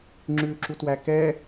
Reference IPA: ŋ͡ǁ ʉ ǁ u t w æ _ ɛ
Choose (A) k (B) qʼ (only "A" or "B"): A